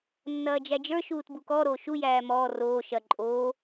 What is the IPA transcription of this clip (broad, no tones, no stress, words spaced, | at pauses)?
nːɐːd͡ʒæd͡ʒə˞ ʃuːtbukɔ ɾoːʃu jæːmɔː roː ʃɐ ǃʼoː